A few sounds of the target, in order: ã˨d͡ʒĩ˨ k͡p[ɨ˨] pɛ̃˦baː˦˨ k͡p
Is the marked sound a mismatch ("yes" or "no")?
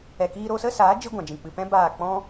no